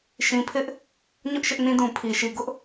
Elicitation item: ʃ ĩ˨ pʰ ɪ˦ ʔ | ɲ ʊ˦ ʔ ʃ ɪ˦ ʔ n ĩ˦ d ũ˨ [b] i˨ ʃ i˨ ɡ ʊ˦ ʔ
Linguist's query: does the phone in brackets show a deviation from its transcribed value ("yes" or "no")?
yes